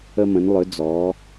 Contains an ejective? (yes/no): no